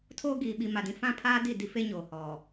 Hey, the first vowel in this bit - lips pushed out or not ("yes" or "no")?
yes